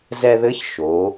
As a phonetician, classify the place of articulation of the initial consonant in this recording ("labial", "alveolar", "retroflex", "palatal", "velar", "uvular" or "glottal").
alveolar